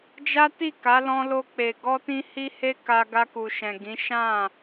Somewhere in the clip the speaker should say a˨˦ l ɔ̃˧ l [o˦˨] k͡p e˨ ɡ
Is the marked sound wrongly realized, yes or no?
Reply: yes